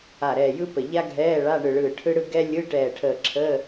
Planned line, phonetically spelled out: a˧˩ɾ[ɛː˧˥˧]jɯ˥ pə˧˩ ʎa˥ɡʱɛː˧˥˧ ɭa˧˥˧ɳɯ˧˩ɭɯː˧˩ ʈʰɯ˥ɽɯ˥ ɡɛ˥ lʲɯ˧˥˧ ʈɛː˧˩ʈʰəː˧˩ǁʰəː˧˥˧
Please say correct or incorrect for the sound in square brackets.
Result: incorrect